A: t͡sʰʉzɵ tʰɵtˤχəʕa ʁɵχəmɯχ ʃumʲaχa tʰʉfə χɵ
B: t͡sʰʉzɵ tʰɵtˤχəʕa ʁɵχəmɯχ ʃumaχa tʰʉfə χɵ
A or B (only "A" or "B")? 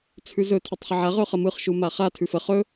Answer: B